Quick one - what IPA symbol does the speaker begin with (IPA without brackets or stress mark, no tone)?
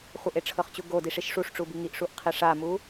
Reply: χʷ